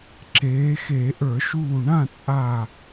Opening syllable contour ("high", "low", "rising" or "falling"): rising